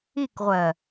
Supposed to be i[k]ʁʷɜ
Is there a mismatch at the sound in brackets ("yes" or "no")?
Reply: no